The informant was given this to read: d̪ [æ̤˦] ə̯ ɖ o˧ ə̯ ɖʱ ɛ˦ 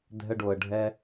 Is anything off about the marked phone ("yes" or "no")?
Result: yes